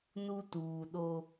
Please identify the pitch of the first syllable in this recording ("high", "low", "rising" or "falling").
high